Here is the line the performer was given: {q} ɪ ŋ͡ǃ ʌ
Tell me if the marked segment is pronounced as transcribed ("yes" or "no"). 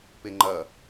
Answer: no